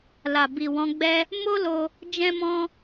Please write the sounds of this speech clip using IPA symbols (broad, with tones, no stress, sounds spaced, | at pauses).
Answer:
l a˨ b i˨ w ɔ̃˨˦ ɡ͡b ɛ˦ | m o˦ l o˧ | d͡ʒ ɛ̃˦ m ɔ̃˦